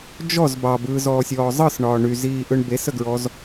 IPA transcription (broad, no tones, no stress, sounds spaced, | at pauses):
d͡ʒ ɔ z b ɑ b ɯː z ɔː sʲ ɔː zˤ ɯ s ɳ ɒː ɳ y z iː ʔ ɯ ɳ b e s ə ɡ ɹ ɔ z